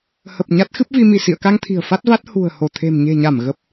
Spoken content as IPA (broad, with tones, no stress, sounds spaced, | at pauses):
h ə˨˩ p̚ ɲ a˦˥ t̚ x ɨ˦˥ p̚ v i˧ m i˧˩ s ḭ˧˨ ə̯ k a˧ ŋ t̪ʰ i̤˨˩ ə̯ f a˦˥ t̚ v a˦˥ t̚ h ṳ˨˩ ə̯ h o˧˩ t̪ʰ e̤˨˩ m ɲ e̤˨˩ ɲ a˧˩ m ɣ ə˨˩ p̚